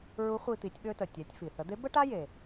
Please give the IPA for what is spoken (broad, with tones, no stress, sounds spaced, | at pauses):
ɹ u˧˥ χʷ i˧ t̪ i˩˧ tʲ ɓ ø˧ t ə˩ tʲ ɛ˩˧ tʲ f i˩ θ ə˩˧ d̪ e˧˥ b ə˥ ʈ a˥ j e˩